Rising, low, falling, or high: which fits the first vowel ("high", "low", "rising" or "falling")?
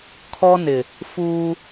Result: high